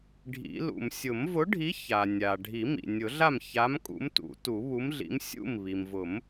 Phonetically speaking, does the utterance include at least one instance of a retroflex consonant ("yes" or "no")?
yes